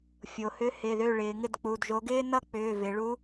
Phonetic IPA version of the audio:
fʲo˩˧hʏ˧˥ hɪ˩˧˩ðø˥˨ɭɪː˩˧ ŋɪ˥˨dk͡pu˩˧˩dʒo˧˥ ɡɪː˥nʌ˥ k͡pʏː˩˧˩vɪ˩˧ ɭu˧˥

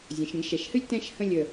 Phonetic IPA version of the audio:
zʲə̃˩˧ʃ ɾʲə̃˧ɡʃɛ˩˧ʃhɨ˥lʲ tɛ̃˥˧ʃhə̃˥˧ lʲə˧˩

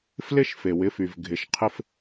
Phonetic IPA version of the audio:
flɪ˦ʃfe˨wɪ˨˦fy˨v ɡʱɪ˨ʃqʰɪ˦f

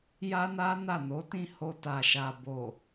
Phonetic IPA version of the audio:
ja˦na˦ na˦˨no˨˦tĩ˦˨ho˧ ta˨ʃa˨bo˨

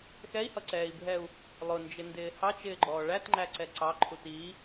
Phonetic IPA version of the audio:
xɛi̯hʌǀɛːi̯bʱɛu̯ | lˠʊnd͡ʒɪndɪː hɑt͡ʃɪːɡ͡ǃɔː ɭætŋ͡ǃæǀɛ ǀɑǃʰu ti

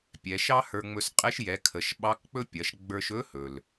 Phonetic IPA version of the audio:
pʲɛ˩˧ʃɑ˥hə˞˧ ŋ͡mɵ˧sqʼɛ˧˥ʃjɛ˩˧ kʰə˩˧ʃɓɑ˧˥kk͡pɵ˥ pʲɐ˩˧ʃɡ͡bə˞˧ʃɵ˧˥hɵ˩l

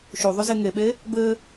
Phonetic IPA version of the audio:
ʃuðˤyze ŋeɓe | bɘ

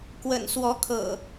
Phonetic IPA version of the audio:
kwə̰˨˩n swɔ˨˦ kʰɤ̰˨˩

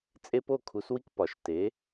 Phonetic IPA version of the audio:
t͡sʼe˦po˥˨kʰu˨˥swi˦k pɒ˨ʃ te˨˥

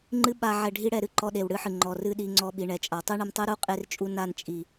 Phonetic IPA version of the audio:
ŋ͡ǃɨ˦ɓa˧ ʕɛ˧ɖʱi˦ɽɛ˧ ɾɨ˧ǃɔ˧ ɗe˨wɽɨ˦ħɨ˨ ŋ͡ǃɔ˨rɨ˦ɗi˧ŋ͡ǀɔ˧ ɓi˨ɳɛ˨t͡ʃʼa˨ tˤɨ˦ɳɨ˧mtˤɨ˦ɾu˦ qʼe˦rt͡ʃʼu˦ na˦˨n t͡ʃʼi˨

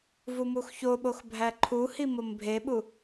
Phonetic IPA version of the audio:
vumuxçoɓox bʱæǃʰuhi mombʱeɓu

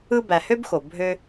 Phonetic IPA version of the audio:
ɯ˦bæ˨hø˥bxo˩ bʱø˦

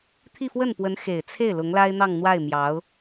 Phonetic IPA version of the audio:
t̪ʰi˥˧fwə˥˩npwə˧˥n xe˨˩ɪ̯t͡sʰe˥˩ɪ̯ lʊ˧˥ŋla˥ɪ̯n̪ɑ˥˧ŋn̪wa˥˩ɪ̯ mjɑ˧˥ʊ̯

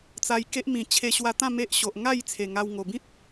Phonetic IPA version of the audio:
t͡sa˧jke˦ʔmĩ˨˩ t͡ɕʰe˧ɕwa˧t̪ã˥˧ me˦ʔɕo˨ʔ ŋa˥˧j t͡sʰe˨˩ŋa˧wŋo˨˩ bĩ˦t̚

